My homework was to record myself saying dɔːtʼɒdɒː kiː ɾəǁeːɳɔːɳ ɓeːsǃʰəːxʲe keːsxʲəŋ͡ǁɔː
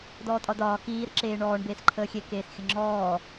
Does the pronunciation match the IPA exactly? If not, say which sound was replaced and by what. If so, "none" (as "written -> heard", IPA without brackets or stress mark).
ɓ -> b